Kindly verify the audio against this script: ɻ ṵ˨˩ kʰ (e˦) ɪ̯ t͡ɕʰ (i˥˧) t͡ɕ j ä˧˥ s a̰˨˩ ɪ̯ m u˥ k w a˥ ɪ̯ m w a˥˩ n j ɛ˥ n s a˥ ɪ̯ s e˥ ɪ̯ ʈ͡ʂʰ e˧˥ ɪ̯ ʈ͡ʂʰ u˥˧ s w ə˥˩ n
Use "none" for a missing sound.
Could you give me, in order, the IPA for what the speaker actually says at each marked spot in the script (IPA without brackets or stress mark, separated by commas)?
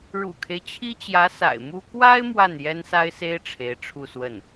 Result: e˦, i˥